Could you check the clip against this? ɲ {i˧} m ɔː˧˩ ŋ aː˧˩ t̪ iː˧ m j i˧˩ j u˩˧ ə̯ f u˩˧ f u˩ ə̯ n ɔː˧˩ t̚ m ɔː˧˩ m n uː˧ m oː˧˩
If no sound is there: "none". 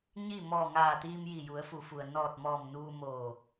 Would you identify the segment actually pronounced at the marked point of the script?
i˥˨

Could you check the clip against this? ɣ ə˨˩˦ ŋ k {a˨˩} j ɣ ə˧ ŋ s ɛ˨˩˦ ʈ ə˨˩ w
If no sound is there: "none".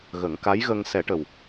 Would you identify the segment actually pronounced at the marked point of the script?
a˧˥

